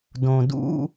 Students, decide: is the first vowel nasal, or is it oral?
nasal